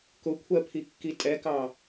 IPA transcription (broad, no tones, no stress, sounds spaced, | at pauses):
k ʊ kʷʰ ɜ pʰ i kː i tʼ ɛ k ɑ